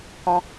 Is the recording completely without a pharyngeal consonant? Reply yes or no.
yes